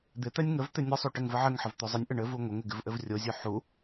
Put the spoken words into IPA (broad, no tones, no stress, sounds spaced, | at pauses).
d̪ ɪ t̪ ɛ nʲ ŋ ə v t̪ ɪ nʲ ə sˤ u ʈ ɘ ŋ v ə ʕ ɘ ŋ ħ ə v t̪ o zˤ ɪ nʲ ʔ ɘ ɳ ɘ v u ŋʷ ə ŋ ɪ ɡ ɪ v ʔ ɘ v rʲ o zʲ o ħ u